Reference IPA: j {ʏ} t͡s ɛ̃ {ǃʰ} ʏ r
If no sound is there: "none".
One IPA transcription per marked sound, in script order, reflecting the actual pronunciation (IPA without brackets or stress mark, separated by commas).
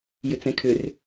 ʏ, kʰ